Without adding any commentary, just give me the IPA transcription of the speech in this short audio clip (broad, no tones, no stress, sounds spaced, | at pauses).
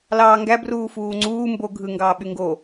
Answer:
l ɑː ŋ ɡ æ b r uː f uː ŋ͡ǀ uː m b o ɡʱ ɯ ŋ ɡ ɑː ɓ y ŋ ɡ o